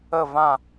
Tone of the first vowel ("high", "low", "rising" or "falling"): falling